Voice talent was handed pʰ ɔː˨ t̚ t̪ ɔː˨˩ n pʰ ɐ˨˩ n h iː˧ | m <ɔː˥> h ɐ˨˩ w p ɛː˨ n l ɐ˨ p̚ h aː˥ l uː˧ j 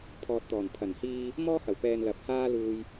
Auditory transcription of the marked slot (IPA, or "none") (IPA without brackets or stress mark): ɔː˥